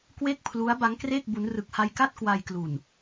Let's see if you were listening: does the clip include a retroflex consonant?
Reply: no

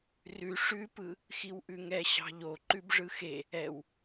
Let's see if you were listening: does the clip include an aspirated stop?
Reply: no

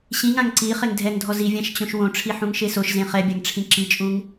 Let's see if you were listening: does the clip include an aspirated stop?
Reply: yes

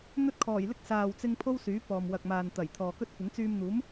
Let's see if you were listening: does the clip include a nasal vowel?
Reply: no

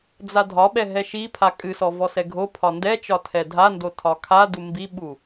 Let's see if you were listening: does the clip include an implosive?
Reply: yes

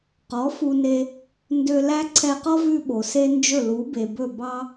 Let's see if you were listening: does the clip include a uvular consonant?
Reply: yes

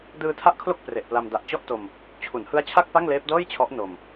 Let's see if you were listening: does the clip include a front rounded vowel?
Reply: no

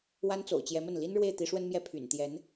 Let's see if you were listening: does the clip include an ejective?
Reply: no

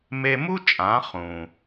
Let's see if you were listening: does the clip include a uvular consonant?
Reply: yes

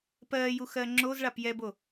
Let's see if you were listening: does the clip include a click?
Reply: yes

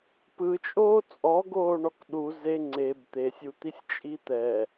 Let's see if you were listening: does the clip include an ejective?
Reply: yes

